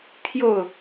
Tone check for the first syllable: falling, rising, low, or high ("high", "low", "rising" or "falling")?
falling